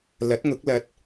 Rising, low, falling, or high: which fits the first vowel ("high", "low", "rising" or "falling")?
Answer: rising